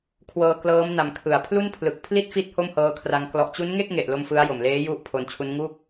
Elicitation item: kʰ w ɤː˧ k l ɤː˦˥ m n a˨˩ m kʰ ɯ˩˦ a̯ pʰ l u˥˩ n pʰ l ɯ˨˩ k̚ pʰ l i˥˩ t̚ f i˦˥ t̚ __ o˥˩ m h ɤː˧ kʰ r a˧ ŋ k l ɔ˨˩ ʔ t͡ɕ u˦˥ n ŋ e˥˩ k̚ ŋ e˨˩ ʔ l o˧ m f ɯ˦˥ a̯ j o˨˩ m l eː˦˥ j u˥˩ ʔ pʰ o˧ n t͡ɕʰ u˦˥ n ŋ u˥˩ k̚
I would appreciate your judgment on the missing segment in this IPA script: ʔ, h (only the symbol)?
h